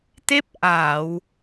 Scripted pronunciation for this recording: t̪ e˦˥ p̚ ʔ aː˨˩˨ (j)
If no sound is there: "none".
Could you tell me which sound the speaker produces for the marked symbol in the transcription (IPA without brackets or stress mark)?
w